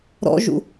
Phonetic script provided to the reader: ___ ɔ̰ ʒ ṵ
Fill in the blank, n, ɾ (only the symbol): ɾ